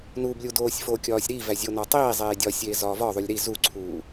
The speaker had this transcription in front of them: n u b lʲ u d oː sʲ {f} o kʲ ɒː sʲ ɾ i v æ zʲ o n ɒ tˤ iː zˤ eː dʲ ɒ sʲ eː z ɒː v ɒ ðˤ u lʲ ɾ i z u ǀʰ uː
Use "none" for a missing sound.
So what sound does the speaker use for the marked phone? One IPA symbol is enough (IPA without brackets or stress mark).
f